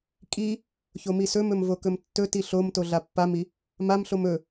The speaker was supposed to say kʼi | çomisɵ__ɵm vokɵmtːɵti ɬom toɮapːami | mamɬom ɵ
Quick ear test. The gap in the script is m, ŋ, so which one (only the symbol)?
m